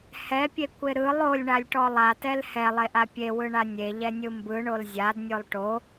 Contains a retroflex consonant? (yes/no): yes